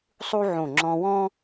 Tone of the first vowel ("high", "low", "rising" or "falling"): high